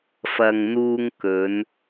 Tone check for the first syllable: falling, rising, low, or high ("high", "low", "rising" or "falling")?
low